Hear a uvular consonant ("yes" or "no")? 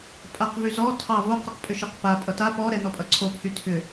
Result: yes